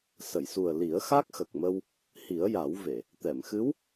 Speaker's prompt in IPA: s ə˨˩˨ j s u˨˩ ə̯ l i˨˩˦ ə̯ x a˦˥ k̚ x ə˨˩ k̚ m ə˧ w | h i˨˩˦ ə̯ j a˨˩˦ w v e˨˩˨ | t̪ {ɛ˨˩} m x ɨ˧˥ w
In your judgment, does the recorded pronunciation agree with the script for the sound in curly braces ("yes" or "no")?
no